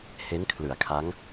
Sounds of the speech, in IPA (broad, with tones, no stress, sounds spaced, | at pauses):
h e˦˥ n kʰ l ɯ˩˦ a̯ kʰ a˦˥ ŋ